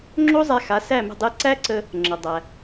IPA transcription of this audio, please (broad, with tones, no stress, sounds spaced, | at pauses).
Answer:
ŋ͡ǁ o˥ zˤ æ˧ x a˩˥ s æ˥˩ m ə̤˥˩ dˤ e˧ ǀ æ˥ ǀ ə˧ | ŋ͡ǁ ə˩ dˤ æ˩